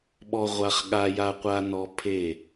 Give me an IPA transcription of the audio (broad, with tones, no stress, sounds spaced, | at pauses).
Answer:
ɓ ɔ˦ ʁʷ a˦ χ ɠ a˦ j a˦ qʷ a˦ n ɔ˦ pʰ e˦˨